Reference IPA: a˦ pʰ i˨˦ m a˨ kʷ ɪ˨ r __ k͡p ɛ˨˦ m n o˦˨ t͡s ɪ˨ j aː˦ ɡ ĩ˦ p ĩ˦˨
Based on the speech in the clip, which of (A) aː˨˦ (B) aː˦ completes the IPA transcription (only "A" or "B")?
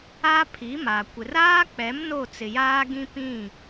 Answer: B